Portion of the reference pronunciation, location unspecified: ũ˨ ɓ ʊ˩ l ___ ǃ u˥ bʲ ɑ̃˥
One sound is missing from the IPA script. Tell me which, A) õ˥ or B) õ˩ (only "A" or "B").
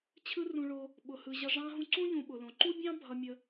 B